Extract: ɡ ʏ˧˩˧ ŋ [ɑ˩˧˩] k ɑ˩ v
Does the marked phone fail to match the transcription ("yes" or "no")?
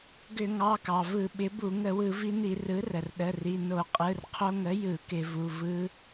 no